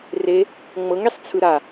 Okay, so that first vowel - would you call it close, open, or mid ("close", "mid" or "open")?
mid